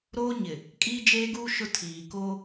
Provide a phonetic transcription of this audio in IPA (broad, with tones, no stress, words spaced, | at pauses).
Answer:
ɾoː˦ɲɪ˨ | kʼiː˦d͡ʒeː˦ɡuː˦ ʃʊ˦ tʰiː˨ko˦